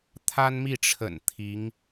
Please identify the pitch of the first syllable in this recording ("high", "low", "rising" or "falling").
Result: high